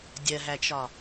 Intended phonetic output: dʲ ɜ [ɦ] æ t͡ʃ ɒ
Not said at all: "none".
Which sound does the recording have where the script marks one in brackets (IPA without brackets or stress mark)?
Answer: ɦ